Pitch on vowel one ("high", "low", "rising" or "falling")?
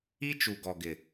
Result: high